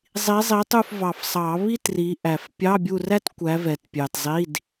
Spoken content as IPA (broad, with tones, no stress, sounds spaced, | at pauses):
zˤ i˨˦ zˤ i˨˦ tˤ u˦˨ f v ɑ˨ f sˤ ɑ˨˩˦ β i˥ t r i˨˦ ʔ æ˨ f pʲ ɑ˧˥˧ bʲ u˦˨ r æ˥ t kʷ æ˨˦ v ɛ˨ t pʲ ɑ˨ t zˤ i˧˥˧ d